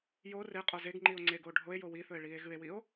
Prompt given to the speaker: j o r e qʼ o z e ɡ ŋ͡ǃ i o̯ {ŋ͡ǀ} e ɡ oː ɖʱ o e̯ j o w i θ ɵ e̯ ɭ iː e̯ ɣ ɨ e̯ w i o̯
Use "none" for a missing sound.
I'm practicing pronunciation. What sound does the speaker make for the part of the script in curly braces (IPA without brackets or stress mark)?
ŋ͡ǀ